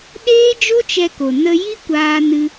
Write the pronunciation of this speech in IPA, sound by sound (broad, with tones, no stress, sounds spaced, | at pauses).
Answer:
ɗ eː˦ d͡ʒ o˦ t͡ʃ ɛ˧ k o˨ n ə˧ j i˦ kʷ aː˧ n ɨ˧